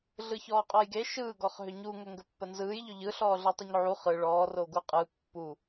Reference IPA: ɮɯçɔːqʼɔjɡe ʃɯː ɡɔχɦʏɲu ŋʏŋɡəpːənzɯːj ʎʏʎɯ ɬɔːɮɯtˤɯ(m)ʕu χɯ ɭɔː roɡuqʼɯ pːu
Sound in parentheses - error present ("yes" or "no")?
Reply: yes